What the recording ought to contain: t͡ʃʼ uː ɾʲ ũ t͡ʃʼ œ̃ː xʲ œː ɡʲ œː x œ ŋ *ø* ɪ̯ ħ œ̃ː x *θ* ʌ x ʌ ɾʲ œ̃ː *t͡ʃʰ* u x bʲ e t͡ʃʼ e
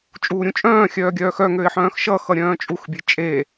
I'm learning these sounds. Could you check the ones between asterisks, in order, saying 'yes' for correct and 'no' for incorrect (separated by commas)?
yes, no, no